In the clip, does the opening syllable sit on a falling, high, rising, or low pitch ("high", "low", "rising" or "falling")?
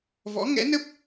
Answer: rising